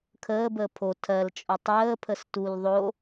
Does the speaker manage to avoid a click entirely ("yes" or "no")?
yes